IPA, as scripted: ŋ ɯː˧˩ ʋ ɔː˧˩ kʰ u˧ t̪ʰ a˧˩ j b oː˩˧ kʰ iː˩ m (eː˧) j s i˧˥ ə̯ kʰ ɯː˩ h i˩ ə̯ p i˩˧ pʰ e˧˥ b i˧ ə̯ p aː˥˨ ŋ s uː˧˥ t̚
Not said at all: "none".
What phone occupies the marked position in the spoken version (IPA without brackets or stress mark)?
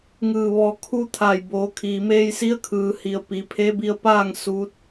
eː˧